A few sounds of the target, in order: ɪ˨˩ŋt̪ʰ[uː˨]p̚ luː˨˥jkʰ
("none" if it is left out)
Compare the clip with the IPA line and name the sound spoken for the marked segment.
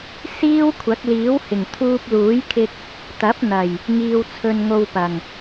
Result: uː˧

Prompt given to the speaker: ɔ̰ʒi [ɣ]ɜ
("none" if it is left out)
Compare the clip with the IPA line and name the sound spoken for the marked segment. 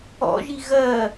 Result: ɣ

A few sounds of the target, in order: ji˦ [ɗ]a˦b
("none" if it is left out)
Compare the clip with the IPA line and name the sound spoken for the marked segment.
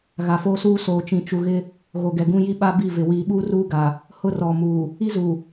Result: ɓ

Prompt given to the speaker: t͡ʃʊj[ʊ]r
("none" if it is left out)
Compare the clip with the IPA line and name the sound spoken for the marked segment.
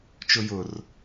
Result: ʊ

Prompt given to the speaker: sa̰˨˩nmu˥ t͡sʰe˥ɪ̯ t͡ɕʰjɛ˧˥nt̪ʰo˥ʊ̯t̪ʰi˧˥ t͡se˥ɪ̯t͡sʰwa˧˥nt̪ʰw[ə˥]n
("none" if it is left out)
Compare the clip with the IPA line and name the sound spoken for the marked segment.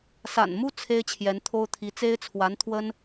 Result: ə˥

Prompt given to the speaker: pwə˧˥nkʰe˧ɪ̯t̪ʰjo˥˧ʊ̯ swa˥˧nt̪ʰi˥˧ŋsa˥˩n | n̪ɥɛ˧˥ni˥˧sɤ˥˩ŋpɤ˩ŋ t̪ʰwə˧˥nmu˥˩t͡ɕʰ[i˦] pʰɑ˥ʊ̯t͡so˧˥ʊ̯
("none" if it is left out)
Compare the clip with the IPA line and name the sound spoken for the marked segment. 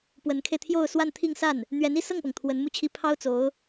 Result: i˥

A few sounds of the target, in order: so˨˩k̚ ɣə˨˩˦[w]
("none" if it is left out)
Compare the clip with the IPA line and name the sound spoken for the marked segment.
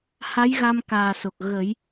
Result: j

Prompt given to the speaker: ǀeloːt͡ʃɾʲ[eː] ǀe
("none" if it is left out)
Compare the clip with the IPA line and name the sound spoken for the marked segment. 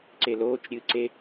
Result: ɨː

